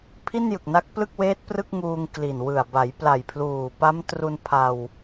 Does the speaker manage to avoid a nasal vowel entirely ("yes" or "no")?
yes